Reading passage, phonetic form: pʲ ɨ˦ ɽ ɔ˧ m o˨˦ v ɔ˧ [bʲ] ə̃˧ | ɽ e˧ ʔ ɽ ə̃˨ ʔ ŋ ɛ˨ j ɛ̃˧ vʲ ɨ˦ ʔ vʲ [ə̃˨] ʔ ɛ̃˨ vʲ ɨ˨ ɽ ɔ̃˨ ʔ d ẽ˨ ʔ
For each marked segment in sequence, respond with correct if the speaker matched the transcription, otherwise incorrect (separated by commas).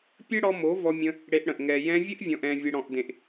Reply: incorrect, incorrect